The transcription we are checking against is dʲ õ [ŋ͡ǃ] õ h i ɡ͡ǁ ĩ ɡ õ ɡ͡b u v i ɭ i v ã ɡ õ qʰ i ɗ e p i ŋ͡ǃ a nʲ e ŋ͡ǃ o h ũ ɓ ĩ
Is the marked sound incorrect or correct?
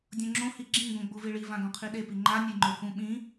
incorrect